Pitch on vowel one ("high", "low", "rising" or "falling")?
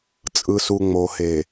low